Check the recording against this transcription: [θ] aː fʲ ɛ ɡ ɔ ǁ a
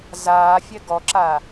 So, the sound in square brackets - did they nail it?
no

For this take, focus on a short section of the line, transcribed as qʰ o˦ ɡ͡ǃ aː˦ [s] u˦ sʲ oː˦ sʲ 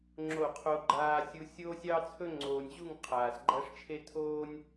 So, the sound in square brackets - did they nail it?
no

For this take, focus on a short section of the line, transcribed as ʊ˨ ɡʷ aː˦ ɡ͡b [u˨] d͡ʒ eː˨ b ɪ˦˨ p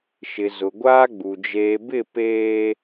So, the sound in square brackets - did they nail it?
yes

